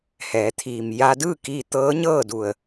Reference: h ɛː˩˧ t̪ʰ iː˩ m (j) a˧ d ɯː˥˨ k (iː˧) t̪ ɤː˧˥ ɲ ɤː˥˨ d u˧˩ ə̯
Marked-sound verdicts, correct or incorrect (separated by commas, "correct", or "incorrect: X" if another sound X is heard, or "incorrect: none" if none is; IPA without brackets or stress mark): correct, correct